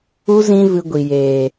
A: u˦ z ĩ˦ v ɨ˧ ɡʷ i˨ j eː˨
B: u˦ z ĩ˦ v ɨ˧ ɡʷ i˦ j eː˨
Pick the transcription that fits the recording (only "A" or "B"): A